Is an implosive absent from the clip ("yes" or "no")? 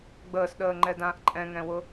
no